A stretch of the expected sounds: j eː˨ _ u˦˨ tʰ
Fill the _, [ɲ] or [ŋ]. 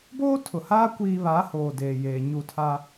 ɲ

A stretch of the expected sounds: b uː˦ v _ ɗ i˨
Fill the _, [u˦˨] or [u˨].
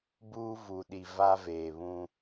u˨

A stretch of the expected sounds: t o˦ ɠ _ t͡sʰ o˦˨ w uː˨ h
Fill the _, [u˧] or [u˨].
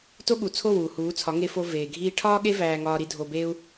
u˨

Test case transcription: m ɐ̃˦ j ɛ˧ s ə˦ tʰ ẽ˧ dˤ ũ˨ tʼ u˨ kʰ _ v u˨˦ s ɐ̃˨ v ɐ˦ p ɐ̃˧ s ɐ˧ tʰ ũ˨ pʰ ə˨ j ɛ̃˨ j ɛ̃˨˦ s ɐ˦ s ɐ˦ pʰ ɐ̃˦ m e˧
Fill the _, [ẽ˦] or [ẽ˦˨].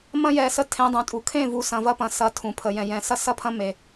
ẽ˦˨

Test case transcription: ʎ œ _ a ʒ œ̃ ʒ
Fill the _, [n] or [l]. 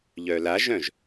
l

